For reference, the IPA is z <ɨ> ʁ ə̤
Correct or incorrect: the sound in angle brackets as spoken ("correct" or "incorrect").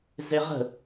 incorrect